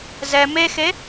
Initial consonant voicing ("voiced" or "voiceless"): voiced